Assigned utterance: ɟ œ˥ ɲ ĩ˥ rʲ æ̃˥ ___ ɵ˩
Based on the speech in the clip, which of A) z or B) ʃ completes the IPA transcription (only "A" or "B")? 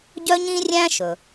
B